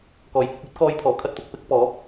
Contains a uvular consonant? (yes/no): no